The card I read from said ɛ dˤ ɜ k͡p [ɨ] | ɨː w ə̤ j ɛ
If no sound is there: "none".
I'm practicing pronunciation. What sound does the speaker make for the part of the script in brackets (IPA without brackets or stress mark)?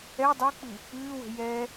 ɨ